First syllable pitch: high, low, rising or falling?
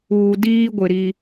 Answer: low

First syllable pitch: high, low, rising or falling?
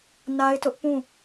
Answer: high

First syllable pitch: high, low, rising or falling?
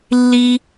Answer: high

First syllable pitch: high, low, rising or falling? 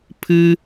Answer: high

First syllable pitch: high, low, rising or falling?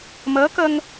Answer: rising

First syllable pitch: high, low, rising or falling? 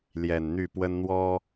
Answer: low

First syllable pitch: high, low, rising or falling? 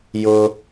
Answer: high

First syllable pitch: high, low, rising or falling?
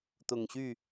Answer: low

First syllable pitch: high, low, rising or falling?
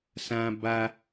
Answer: high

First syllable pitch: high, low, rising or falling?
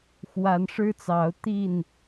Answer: rising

